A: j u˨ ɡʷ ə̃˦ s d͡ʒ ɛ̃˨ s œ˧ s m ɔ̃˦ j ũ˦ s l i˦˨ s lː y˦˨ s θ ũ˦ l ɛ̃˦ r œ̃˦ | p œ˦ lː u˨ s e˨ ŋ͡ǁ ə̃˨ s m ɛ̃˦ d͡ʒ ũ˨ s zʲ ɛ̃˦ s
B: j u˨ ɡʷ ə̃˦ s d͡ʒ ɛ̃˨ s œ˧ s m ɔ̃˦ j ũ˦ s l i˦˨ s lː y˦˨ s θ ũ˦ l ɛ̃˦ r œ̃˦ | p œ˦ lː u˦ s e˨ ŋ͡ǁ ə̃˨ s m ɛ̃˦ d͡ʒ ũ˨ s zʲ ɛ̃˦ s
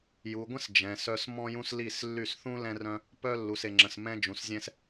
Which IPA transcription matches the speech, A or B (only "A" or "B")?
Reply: A